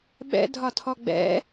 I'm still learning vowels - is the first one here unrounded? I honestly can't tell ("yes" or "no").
yes